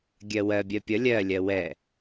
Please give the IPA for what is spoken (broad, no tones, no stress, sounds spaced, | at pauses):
ɡʲ ɜ w ɜ bʲ ɜ pʲ ʌ lʲ ɜ lʲ ɜ w ɛ